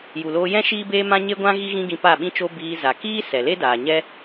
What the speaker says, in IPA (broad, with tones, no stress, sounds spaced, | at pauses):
j u˨ l oː˧ j ɛ̃˦ ʃ iː˦ b eː˦ m ã˦ ɲ e˦ ɡʷ ã˦ ɣ i˦ ɣ ĩ˦ ɡ ĩ˧ p a˦˨ ɓ ĩ˦ t͡ʃ o˦ b iː˧ z a˨ k iː˦ s ɛ˨ l e˦ d aː˨ ɲ ɛ˦